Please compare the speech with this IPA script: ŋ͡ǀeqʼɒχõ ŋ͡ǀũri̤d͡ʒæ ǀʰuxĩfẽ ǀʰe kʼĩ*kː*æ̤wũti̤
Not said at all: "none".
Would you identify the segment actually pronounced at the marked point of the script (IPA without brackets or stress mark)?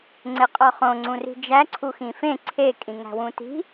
ŋ